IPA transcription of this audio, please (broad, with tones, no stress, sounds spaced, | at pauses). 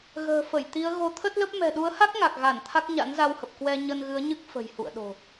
ɣ ə̤ː˨˩ f ə˧˩ j t̪ i˨˦ ə̯ ɣ o˨˦ t̪ʰ ə˦˥ t̚ l ə˦˥ p̚ m ɛ̤˨˩ ɗ u˨˦ ə̯ h a˦˥ k̚ ŋ a˨˩ k̚ ɣ a˧˩ n t̪ʰ a˦˥ k̚ ɲ a̰˧˥ n z a˧ w h ə˨˩ p̚ k w ɛ˧ ɲ ə˧ n ɣ ɨ˨˦ ə̯ ɲ ɨ˦˥ k̚ f ə̤˨˩ j h ṵ˧˨ ə̯ ɗ o̤˨˩